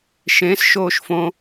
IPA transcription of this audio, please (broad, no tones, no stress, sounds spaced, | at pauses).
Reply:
ʃ ẽ s ʃ oː ʃ f õ